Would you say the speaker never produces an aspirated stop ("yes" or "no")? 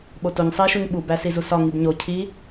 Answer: no